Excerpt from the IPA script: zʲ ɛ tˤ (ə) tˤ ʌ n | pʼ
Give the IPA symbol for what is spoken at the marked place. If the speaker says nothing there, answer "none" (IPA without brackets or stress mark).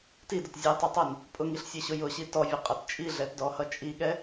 ʌ